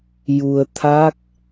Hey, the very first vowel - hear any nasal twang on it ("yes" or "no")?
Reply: no